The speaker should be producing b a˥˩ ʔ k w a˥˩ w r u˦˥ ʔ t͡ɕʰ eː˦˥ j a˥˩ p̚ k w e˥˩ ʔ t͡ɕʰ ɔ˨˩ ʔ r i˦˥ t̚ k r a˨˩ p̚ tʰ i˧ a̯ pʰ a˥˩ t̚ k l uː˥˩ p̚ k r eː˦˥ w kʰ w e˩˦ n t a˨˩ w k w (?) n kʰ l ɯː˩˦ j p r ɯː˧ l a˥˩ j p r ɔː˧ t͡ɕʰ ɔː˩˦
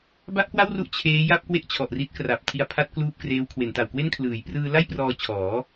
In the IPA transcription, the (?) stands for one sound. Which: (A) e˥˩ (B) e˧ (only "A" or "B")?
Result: A